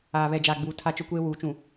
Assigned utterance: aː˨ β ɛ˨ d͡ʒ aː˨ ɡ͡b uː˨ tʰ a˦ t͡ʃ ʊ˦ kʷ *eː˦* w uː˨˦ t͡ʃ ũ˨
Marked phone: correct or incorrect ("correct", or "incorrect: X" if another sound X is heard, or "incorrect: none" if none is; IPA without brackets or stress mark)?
correct